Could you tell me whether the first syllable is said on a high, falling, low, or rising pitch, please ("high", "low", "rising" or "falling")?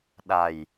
low